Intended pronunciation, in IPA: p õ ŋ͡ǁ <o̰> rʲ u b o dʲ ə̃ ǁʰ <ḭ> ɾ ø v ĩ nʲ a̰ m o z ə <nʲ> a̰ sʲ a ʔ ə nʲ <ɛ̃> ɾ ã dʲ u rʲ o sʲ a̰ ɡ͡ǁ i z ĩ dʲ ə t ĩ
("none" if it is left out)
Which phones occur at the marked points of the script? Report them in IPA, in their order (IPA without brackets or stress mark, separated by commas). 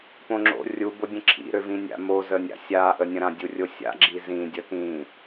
o̰, ḭ, nʲ, ə̃